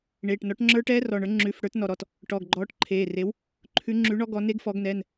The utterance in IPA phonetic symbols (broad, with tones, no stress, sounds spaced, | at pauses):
ɳ eː˩˧˩ ʈ n ɔ˨˥ ʈ ŋ͡ǁ ə˞˦˥ ʈ ɛː˦˥ r ɔ˩˧˩ ɳ ə˞˨˥ ŋ͡ǁ ʉ˩˧˩ f ɽ ə˞˨˥ t n ɔ˩˧˩ ɾ ɔ˩˧˩ t | ʈ ɔ˩˧˩ ɡ ɡ͡ǃ ɔː˨˥ ʈ ǃʰ eː˩˧˩ r e˨˥ w | ǃʰ ʉ˨˥ ŋ͡ǁ ʉ˨˥ ɳ ɔ˦˥ ɡ ɔ˨˥ n e˦˥ ɡ f ɔ˨˥ ɡ n ɛ˩˧˩ n